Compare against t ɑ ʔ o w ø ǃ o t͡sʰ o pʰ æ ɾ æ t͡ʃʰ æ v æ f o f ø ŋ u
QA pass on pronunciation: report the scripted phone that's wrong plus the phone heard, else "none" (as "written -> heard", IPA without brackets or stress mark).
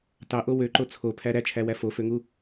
v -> w